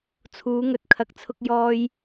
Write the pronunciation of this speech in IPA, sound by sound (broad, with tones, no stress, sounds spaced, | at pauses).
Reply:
t͡sʰ uː˨˧ ŋ ɵ˨ t̚ kʰ ɐ˨ k̚ t͡sʰ ʊ˧ k̚ j ɔː˧ j